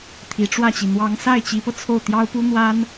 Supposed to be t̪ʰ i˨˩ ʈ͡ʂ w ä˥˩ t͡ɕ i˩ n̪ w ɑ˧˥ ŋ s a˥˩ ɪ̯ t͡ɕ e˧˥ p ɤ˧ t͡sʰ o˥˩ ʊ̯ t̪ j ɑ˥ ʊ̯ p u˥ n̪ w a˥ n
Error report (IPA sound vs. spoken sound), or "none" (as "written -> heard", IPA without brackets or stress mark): e˧˥ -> i˧˥